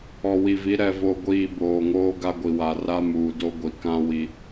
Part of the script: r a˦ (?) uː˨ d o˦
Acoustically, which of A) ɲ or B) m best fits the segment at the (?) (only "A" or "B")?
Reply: B